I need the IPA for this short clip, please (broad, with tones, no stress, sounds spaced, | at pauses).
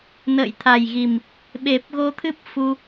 n ə̰ː˧˨ j t̪ʰ a˨˩ j ɣ i˨˩ m | ɓ e˨˩ p̚ ɣ o˧ t̪ʰ ɨ˦˥ p̚ f u˧